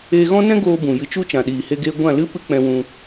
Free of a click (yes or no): yes